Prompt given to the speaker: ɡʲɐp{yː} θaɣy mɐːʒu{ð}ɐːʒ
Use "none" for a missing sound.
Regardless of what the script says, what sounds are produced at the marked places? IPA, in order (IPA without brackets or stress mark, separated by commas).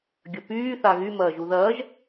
yː, ð